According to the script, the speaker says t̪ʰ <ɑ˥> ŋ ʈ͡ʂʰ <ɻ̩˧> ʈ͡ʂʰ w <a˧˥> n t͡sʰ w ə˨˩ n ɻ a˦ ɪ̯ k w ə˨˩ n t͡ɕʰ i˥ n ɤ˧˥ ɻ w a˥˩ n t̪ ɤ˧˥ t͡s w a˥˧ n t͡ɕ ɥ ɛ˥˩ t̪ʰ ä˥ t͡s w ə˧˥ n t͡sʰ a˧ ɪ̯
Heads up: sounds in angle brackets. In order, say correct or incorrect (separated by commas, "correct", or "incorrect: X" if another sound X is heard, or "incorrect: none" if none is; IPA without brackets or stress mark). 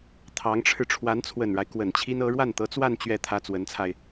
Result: incorrect: ɑ˧˥, correct, correct